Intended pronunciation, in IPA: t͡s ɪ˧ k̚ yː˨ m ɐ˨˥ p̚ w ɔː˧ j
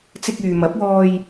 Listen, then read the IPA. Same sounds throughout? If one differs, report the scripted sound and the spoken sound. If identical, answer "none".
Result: none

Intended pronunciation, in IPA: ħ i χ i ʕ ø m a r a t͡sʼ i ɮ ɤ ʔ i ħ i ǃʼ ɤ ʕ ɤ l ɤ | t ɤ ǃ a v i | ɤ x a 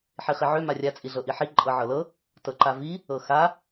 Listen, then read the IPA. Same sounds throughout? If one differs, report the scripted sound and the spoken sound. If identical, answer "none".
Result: r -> rʲ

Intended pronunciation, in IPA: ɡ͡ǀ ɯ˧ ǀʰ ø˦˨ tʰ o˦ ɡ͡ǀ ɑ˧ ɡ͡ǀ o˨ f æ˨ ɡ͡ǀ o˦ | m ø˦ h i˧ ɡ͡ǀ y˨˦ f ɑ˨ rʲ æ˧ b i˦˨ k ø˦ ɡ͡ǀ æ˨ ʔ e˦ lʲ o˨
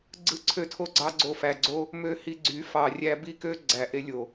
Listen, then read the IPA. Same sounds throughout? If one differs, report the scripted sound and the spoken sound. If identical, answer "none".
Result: none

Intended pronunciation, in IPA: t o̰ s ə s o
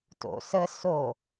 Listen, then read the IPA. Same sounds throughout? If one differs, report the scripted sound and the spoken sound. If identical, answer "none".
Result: none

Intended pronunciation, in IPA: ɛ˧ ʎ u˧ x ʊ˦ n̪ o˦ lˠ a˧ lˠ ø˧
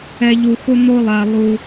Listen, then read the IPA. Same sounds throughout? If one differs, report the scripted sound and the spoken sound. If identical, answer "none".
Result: ø˧ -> u˧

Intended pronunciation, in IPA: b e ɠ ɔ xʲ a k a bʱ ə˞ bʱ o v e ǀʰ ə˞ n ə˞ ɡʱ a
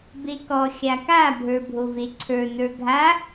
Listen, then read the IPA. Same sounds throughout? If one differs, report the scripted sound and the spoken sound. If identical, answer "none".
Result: ɠ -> k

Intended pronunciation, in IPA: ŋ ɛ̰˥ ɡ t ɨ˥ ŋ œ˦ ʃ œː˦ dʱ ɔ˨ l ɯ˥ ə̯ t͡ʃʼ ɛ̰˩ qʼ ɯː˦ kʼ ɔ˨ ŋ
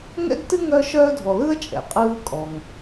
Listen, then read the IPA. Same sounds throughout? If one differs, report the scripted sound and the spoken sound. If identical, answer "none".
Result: none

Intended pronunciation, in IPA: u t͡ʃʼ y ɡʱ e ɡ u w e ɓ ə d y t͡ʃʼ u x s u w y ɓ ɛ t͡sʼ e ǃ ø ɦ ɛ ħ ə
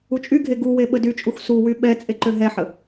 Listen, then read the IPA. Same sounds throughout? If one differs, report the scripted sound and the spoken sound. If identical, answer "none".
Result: none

